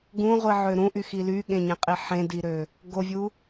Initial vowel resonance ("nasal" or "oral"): nasal